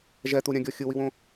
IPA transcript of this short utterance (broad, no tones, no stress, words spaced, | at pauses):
ʒɛt̪uɾʲãɡʲɔ xʲɯwiwõ